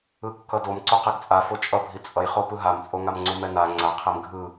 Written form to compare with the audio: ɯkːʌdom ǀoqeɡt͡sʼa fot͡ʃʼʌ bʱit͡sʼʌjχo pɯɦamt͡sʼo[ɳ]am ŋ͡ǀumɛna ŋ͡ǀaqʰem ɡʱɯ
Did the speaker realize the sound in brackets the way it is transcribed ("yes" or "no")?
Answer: no